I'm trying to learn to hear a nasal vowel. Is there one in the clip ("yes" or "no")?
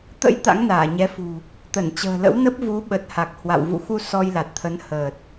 no